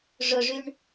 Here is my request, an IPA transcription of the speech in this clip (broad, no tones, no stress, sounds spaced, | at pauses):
ʐ ʊ ʐ y ɳ